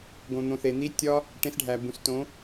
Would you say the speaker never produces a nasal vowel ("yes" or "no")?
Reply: no